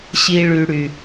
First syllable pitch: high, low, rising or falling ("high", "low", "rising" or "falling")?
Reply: high